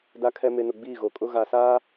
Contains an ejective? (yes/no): yes